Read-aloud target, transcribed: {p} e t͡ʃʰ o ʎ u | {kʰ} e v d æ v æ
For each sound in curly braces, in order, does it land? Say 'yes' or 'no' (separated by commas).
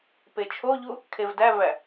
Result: yes, yes